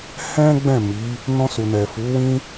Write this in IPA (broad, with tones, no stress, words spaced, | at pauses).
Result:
hɛ̃˦ ɡ͡bɛ̃˦˨ mi˨˦ | nɔ̃˧su˨nɛ˨ fu˨˦wĩ˦